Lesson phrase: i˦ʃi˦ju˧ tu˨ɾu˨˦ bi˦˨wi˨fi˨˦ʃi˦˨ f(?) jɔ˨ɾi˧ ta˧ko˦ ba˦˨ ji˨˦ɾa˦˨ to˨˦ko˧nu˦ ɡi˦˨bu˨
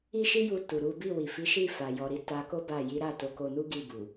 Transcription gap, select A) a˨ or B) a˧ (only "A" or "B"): A